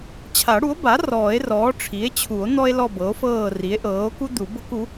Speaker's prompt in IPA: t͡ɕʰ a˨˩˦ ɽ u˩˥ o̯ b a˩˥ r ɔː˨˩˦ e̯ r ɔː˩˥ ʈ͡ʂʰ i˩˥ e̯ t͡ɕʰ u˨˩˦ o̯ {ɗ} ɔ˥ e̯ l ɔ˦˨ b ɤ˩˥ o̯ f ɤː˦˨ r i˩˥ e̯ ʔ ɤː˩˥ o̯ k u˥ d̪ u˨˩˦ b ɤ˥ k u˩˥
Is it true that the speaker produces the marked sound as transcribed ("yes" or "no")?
no